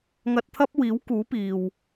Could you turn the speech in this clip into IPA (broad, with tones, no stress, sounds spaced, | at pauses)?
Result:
ŋ ɐ˧ t̚ t̪ʰ ɐ˥ p̚ w iː˨˥ w k uː˨˥ p iː˨ w